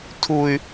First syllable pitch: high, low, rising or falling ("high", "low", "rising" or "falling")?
high